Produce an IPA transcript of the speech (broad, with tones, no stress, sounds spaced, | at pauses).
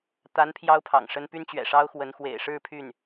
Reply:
t̪ a˧˥ n pʰ j ɑ˥ ʊ̯ pʰ ɑ̰˨˩ ŋ ʂ ə˥ n p y˥ n t͡ɕ ɥ ɛ̰˨˩ ʂ ɑ˥ ʊ̯ x w ə˧˥ n x w ḛ˨˩ ɪ̯ ʂ ɻ̩˥˧ pʰ y˥˩ n